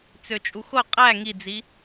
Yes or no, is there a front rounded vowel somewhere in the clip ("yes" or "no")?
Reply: yes